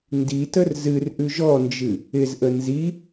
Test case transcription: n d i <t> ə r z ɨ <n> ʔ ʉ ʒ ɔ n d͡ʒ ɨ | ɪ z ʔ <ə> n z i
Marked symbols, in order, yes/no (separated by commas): yes, no, yes